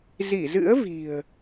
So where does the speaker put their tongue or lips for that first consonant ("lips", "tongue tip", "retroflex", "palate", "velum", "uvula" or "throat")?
tongue tip